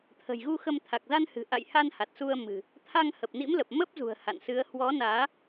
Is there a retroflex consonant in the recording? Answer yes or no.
no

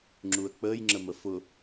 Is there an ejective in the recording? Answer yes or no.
no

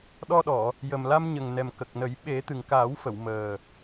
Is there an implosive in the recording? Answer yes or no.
yes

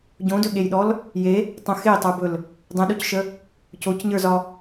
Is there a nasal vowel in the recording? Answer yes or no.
yes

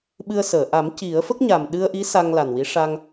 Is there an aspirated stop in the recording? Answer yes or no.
no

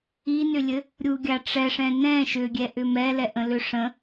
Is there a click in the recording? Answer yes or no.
no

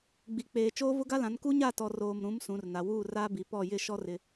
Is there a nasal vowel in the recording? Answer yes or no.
yes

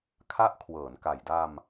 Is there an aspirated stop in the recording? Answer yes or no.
yes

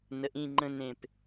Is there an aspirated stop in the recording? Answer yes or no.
no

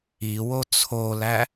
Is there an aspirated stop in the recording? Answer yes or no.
yes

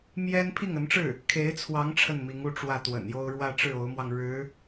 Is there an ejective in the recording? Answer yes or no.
no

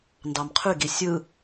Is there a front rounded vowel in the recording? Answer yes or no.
yes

